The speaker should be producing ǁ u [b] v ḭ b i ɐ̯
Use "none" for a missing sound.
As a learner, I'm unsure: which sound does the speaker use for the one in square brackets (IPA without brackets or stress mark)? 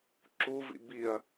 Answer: none